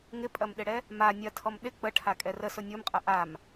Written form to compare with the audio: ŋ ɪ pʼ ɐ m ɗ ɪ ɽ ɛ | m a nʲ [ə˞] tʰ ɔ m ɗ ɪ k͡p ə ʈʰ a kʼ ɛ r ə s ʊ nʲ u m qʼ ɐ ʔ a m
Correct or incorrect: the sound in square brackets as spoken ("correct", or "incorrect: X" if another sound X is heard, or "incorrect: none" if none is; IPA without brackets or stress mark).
incorrect: ɐ